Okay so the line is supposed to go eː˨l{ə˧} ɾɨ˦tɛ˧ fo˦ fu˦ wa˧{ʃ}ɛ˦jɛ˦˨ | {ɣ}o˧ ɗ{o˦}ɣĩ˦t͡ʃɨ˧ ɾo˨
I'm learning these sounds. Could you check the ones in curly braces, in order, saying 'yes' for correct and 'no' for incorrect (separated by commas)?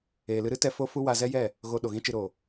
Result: no, no, yes, no